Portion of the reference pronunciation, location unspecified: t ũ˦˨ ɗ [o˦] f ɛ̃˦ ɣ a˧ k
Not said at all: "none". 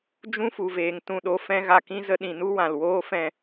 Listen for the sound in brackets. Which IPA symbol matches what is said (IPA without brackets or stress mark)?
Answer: o˦